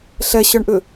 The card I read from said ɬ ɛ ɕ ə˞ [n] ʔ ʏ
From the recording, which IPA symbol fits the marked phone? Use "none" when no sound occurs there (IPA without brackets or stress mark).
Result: ɳ